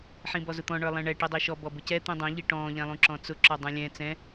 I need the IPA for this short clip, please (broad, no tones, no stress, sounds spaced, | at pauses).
ħ ĩ b ɔ z ʊ t̪ ɔ̃ ɳ ə˞ lˠ ɛ̃ ɳ ɛ ʈ i dˤ i ʃ ɔ b ɔ b ʊ c ɛ t̪ ĩ dˤ ɛ̃ ʎ i ʈ ɔ̃ː ʎ ɛ̃ lˠ ũ ǁ ɔ̃ t͡s ʊ ǁ ɔ dˤ ũ lʲ ɛ̃ t͡s ɛ̃